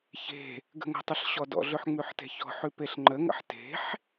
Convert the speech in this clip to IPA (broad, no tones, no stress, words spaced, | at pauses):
çe̤ | ɡə̤ŋə̤tˤəɬ ɕɔdɔ̰ɮøħ ŋ͡mʉħte̤çɔ̤ħʉ peɬŋ͡ǃəŋə̰ħ te̤ħ